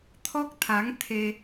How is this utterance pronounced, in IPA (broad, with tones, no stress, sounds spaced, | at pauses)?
t̪ʰ ɔ˦˥ k̚ t̪ʰ a˨˦ ŋ t̪ʰ e˧